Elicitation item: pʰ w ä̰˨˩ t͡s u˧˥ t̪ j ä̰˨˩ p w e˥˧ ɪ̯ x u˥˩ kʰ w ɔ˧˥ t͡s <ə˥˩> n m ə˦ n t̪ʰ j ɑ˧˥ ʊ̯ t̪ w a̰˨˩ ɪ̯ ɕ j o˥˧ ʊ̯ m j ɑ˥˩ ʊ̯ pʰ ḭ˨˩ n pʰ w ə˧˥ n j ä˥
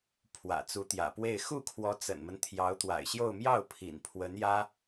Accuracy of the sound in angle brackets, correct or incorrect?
incorrect